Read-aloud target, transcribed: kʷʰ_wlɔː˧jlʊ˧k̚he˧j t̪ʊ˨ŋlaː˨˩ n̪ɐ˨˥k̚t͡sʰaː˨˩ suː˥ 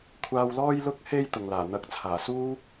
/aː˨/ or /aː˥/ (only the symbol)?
aː˨